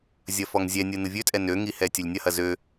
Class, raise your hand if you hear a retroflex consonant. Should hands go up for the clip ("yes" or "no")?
no